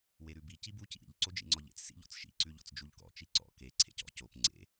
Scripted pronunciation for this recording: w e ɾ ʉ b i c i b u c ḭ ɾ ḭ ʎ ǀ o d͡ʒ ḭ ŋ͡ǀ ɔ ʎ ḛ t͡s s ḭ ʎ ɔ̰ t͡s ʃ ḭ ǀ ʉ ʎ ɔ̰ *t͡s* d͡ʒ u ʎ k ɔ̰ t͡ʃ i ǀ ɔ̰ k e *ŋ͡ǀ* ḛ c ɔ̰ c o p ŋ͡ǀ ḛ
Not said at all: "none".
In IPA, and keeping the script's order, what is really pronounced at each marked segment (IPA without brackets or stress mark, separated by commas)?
t͡s, ǀʰ